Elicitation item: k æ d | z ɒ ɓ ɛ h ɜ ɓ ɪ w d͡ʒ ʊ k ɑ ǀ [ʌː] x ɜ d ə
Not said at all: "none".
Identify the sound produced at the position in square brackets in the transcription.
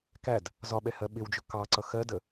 ʌ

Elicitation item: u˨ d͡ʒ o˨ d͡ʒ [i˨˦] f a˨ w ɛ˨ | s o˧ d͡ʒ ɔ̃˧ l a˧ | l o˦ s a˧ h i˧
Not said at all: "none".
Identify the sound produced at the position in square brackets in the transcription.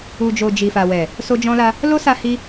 i˨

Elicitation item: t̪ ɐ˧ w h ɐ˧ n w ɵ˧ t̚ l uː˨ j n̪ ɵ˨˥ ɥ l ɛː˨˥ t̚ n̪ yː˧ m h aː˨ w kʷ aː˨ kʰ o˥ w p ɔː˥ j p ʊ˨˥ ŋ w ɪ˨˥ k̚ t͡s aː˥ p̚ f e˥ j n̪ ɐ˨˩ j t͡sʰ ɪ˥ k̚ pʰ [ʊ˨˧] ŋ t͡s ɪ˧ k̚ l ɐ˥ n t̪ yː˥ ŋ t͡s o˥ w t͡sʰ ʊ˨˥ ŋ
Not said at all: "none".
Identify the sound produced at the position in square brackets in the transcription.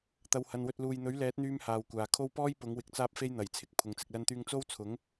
ʊ˨˧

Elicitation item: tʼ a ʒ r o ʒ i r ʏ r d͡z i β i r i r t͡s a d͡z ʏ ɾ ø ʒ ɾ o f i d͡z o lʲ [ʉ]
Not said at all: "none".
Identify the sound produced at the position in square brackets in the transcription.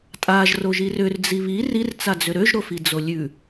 ʉ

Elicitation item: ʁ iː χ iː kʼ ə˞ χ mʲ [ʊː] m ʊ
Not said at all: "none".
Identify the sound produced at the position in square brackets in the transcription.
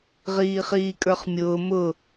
ʊː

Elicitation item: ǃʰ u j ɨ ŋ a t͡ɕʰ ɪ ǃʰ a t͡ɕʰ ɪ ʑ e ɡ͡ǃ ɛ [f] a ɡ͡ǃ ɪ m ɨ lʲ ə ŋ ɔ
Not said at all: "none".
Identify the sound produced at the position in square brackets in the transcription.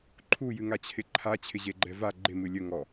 v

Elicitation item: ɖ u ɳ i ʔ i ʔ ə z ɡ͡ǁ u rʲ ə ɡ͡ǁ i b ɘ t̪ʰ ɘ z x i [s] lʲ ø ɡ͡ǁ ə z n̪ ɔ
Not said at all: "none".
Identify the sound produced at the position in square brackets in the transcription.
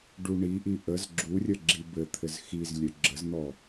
z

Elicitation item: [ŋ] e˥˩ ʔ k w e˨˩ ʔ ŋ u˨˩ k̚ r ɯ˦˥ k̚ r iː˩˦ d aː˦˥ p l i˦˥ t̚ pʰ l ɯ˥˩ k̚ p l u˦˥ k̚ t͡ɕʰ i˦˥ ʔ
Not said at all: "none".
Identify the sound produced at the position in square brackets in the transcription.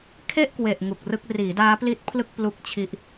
kʰ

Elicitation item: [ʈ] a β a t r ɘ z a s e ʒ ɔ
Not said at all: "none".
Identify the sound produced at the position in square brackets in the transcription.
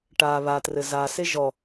ʈ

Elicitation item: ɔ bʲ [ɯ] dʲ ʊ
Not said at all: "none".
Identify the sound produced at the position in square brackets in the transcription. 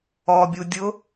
u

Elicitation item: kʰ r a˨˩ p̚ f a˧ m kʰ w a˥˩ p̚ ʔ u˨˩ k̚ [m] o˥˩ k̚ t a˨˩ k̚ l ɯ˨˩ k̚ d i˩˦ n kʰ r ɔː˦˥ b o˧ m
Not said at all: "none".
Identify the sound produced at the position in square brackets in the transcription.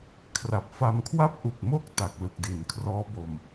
m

